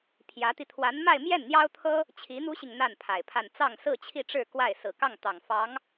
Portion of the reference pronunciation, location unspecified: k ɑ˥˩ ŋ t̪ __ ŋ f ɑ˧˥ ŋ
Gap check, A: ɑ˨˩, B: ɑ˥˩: A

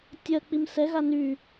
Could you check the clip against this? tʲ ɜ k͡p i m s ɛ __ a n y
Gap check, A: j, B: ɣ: B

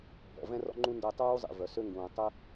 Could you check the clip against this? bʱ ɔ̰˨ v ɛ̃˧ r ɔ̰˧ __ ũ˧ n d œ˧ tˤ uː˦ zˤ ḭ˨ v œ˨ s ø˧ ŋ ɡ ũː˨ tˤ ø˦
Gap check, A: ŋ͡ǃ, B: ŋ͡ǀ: A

